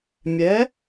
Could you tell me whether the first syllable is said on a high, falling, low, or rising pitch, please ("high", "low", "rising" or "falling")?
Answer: rising